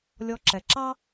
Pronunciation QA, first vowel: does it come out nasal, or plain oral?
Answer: oral